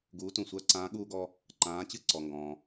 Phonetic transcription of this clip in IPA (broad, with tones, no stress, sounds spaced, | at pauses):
ɡ uː˩˥ t ũ˩ sʷ ɜ˧ ǀ ãː˩˥ ɠ uː˧ ɡ ɔ˧ | ǃ ãː˩˥ t͡ɕ ɨ˥˩ ǀ ɔ˩ ŋ ɡ ɔ̃ː˩